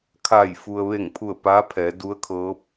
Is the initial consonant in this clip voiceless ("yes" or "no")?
yes